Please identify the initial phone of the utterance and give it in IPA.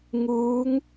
ŋ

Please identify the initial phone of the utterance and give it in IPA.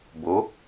b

